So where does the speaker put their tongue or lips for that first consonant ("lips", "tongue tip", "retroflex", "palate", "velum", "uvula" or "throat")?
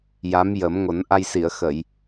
palate